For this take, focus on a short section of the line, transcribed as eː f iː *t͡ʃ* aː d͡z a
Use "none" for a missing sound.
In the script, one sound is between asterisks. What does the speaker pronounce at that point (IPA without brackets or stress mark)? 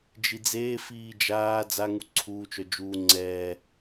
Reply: d͡ʒ